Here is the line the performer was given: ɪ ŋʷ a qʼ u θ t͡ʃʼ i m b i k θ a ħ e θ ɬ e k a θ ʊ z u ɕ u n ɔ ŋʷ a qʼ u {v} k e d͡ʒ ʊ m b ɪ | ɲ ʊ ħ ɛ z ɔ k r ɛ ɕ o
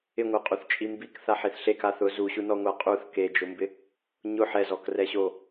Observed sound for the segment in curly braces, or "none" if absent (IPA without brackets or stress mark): θ